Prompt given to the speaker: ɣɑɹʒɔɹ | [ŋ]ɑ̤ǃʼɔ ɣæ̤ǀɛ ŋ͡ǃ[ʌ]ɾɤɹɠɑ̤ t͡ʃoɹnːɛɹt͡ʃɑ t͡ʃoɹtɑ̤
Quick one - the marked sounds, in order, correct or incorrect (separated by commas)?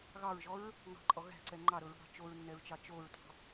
correct, incorrect